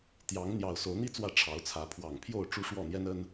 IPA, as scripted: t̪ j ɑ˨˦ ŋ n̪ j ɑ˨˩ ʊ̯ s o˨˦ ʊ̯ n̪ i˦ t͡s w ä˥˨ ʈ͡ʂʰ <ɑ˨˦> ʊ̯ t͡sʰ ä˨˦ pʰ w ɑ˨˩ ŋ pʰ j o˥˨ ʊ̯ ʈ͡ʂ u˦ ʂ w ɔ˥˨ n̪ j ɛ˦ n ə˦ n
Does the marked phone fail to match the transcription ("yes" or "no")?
no